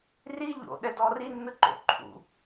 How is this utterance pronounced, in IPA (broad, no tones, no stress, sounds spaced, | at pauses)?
r i ʎ o̰ ɗ ɛ d ɔ r i nː ɯ ǃ o̰ ǃʰ ṵ